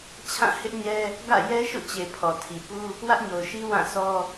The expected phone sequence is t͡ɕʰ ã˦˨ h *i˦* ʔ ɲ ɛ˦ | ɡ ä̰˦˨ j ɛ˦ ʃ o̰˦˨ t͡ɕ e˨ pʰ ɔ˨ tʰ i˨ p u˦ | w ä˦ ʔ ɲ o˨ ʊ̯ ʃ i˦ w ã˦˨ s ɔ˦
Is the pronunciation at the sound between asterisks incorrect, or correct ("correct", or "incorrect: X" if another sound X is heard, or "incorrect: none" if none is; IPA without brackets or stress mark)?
incorrect: ɪ˦